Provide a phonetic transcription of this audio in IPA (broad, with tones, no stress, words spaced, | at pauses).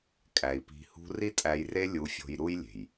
kʼæ˨i̯pi̤˧hṳ˦ ri˦tʼæ˧jre˦ lʲu˧ fʲo̤˧jɾu˦jlʲe̤˨j